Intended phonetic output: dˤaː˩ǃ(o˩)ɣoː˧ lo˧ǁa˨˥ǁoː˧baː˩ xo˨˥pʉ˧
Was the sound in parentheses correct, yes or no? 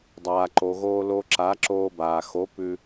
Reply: yes